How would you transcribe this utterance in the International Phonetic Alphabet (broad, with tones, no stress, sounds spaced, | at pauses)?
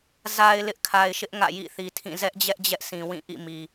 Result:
z a˨ ɪ̯ l ɪ˦ ʔ kʰ a˨ ɪ̯ ʃ ɪ˦ ʔ ŋ ä̰˦˨ j ḭ˦˨ θ i˨ tʰ ĩ˦˨ z ɛ˦ ʔ d͡ʑ ɛ˦ ʔ d͡ʑ ɛ˦ ʔ sʰ ĩ˨ w ĩ˦˨ ʔ ḭ˦˨ m i˨